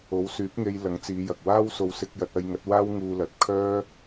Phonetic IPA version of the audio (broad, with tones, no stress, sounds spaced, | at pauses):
o˨˥ w s yː˨˥ p̚ ŋ e˧ j l ɐ˨˥ ŋ t͡s iː˨˧ j ɐ˨ k̚ w aː˥ w s o˧ w s ɪ˧ k̚ j ɐ˧ t̚ ɐ˧ j ŋ ɐ˨˥ t̚ w aː˥ w ŋ uː˧ l ɐ˨˥ t̚ kʰ œː˥